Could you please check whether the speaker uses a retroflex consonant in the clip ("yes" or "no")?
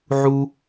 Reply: no